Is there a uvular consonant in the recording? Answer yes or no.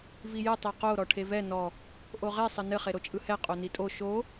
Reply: yes